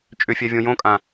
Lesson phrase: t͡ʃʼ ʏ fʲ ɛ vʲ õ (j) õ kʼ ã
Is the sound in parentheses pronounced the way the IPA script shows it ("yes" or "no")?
yes